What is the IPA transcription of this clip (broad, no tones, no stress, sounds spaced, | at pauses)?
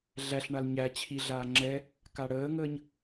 ɮ æ ɬ ɳ a l ɲ æ t͡ɕʰ i ɮ aː ŋ͡ǁ ɛ | k a ɽ əː ŋ əː ɲ